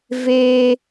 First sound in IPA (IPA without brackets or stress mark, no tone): v